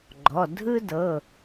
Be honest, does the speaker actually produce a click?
yes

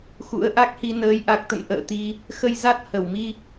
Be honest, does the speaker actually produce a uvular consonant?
no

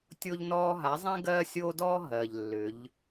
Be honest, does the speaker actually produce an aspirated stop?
no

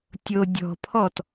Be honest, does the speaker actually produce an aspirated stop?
yes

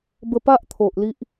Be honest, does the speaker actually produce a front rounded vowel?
no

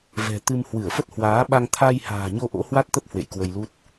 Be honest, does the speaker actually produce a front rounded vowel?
no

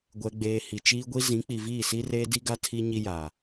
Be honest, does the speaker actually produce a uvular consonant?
no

